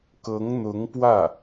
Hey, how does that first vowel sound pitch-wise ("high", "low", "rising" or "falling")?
rising